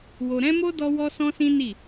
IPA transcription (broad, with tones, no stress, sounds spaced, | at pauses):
w o˧ ɾ ɛ̃˦ m o˦ d ɔ˦ w ɔ˦ s ɔ̃˦ s ĩ˦ n i˦˨